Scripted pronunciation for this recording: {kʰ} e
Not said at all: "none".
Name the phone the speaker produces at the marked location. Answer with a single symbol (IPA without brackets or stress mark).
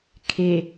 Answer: kʰ